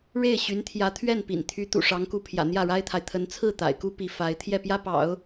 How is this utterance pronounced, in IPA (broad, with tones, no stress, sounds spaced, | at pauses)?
ɻ e˥˩ ɪ̯ ɕ y˧˥ n t̪ʰ j ä˧˥ t̪ʰ ɥ ɛ˥˩ n p ḭ˨˩ n t̪ʰ y˧˥ t̪ ṵ˨˩ ʂ ɑ˧˥ ŋ k u˧˥ pʰ j ä̰˨˩ n̪ j ä˥˩ ɻ a˥ ɪ̯ t̪ʰ a˨ ɪ̯ t̪ʰ ə˧˥ n t͡sʰ ɹ̩˥˩ t̪ a̰˨˩ ɪ̯ k u˥ p i˧˥ f a˧˥ ɪ̯ t̪ʰ j ɛ˥˩ p j ä˥ p ɑ̰˨˩˦ ʊ̯